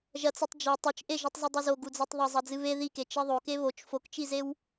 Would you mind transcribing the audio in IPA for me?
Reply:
ʒ ɐ t͡s ɨ tˤ d͡ʒ i tˤ o t͡ʃ ʔ e ʒ u tˤ z ɨ dˤ e z o ɡ u d͡z e tˤ ðˤ ɐ zˤ ɐ d͡z ɨ β e ð i k e t͡ʃ i ðˤ o k e β o t͡ʃ f o k t͡ʃ i z e w

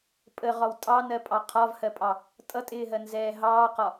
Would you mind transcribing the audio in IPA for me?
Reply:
pʼ ə ʁ ɒ w tʼ ɑ n ɜ pʼ ɑ qʰ ɒ v h ɜ pʼ ɑ | tʼ ʌ tʼ ɪː ɦ ɜ n z ɛː ɦ ɑː q ɒ

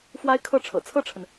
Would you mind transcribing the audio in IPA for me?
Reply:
f w a˥ ɪ̯ kʰ ɤ˥˩ ʈ͡ʂʰ ɤ̰˨˩ t͡sʰ ɤ˥˩ ʈ͡ʂʰ ə˩ n

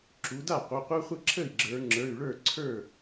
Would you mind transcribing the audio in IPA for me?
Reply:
ǁ u˩˧ d a˥˩ qʷ ə˩˧˩ qʷ ə˞˦ χʷ ə˥˩ ǁʰ ə˥˩ i̯ ɡ͡ǁ ə˞˩˧ ŋ͡ǁ ə˞˩˧˩ y̯ ɭ ə˞˥˩ ǀʰ ə˞˥˩

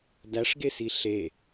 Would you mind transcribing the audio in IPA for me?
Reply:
d æ ʂ ɡ e s i ɬ e

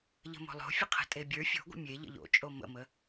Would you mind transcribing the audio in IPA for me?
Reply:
ʎ ə̤ m o̤ lˠ o̤ fʲ ə qʰ ə̤ tʼ e bʲ ə˞ fʲ o̤ ɡʷ ə̰ mʲ e ʎ ə̰ ʎ o̰ t͡ʃʼ o m ə̰ m ə

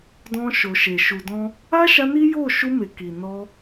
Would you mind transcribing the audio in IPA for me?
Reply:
d ɔ̃˧ ʃ o˨ ʃ e˨ ʃ u˨ d ɔ̃˧ | a˦ ʃ a˧ n i˦ j o˦˨ ʃ u˧ m e˨ k i˨ n ɔ˧

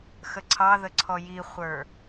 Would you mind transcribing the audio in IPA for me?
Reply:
x ə ǀʰ ɑ ð ə ǀʰ ɔ j i χʷ ə˞

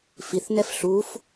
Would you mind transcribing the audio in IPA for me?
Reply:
f i θ n ɛ f ɬ u f

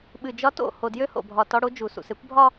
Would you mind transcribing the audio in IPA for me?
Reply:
ɓ ɨ˨ d͡ʒ ɒ˦ t o̰˦˨ h o˨ d j ø˦ h o̰˨ bʱ ɒ˨ t ɒ˦ ɽ o˦ d͡ʒ u˨ s ṵ˨ s e˦ kʷ bʱ ɒ˦

